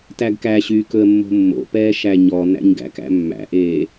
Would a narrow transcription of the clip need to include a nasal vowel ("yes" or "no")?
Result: no